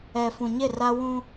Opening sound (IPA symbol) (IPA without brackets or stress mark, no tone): ɛ